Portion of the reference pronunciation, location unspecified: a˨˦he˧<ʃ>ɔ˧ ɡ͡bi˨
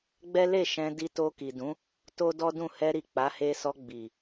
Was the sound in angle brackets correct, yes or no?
no